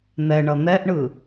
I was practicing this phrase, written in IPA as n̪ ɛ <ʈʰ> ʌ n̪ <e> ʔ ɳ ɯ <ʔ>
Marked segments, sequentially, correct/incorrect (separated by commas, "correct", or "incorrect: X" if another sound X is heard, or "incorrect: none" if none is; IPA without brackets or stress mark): incorrect: ɳ, incorrect: ɛ, incorrect: none